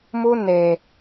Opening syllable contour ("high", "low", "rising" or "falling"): high